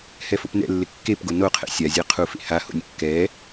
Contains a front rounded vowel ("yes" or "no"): no